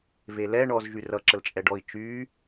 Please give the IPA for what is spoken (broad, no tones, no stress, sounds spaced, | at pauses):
v e l ɛ ɳ ɔ z ʒ y r ʌ ǁ ə l t͡ʃʼ ɛ ɖ ɔ i̯ t͡ʃ yː